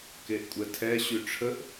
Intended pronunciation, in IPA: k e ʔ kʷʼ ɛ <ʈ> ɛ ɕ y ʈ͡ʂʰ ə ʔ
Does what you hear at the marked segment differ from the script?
yes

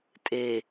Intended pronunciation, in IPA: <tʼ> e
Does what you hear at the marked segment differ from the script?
no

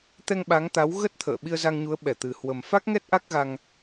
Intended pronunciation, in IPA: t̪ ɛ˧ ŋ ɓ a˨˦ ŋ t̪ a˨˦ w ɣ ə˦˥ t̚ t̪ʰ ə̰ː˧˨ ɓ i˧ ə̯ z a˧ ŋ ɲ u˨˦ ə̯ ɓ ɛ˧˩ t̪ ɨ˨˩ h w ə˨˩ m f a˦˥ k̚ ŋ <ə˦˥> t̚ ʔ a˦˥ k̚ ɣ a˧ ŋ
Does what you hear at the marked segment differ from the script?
yes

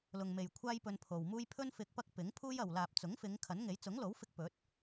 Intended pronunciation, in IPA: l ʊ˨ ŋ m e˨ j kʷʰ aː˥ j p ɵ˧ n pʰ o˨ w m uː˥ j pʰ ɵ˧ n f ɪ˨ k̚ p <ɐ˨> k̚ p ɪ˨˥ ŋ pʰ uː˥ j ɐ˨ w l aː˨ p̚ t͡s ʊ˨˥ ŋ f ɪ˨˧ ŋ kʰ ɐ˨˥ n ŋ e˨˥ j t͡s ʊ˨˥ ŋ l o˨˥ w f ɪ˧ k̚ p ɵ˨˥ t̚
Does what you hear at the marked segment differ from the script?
yes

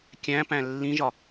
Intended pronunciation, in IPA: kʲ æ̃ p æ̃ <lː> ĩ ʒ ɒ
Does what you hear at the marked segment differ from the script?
no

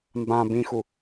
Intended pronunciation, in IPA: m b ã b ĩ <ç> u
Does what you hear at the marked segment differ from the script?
yes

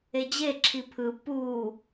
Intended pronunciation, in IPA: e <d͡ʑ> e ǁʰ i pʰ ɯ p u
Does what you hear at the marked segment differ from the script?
no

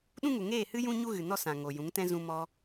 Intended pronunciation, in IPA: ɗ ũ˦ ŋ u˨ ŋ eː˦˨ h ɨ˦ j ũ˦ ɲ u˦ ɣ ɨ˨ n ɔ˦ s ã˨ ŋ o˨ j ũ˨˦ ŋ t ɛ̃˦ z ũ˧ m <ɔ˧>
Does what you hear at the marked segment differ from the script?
no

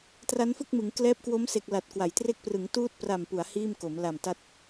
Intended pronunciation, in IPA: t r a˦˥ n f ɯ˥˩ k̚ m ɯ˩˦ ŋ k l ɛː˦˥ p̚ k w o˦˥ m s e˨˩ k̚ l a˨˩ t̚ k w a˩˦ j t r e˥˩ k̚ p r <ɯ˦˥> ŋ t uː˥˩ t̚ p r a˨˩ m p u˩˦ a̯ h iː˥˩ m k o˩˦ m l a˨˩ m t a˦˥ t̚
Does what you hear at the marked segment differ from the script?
yes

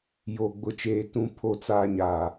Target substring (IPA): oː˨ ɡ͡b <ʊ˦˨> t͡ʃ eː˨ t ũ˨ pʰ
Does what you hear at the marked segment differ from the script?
yes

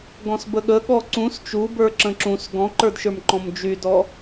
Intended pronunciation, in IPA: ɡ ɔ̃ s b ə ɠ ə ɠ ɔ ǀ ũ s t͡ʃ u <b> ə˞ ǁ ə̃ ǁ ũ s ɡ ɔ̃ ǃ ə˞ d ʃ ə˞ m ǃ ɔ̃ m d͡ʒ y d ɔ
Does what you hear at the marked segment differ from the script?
no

